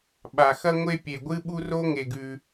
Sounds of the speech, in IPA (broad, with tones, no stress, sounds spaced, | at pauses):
ɓ a˩ x ɐ˦ ŋʷ e˦ pʲ e˩ ɡʷ ɨ˦ ɓ u˦ r o˦ ŋ e˩ ɡ ʉ˩